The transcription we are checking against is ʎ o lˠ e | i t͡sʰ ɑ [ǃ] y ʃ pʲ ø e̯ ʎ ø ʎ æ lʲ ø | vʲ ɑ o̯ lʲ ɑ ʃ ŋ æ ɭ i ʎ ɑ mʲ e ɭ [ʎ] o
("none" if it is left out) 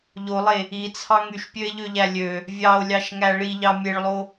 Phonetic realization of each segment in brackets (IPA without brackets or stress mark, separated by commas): ŋ, lˠ